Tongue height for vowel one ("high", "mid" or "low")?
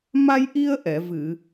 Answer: low